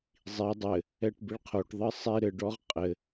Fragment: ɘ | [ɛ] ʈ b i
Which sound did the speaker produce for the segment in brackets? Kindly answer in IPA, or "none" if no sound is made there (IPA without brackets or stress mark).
ɛ